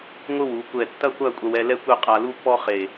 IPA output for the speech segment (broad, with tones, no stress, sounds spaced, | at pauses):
ŋʷ ɨ˥ w u˩˧ kʷ ɛ˧˩ tː ɐ˥ kʷ a˥˧ kʷʼ ɐ˧ w ɛ˧ l ɛ˥ kʷ e˥˧ qʼ a˧ l u˥ pː ɔ˥ χ e˧˩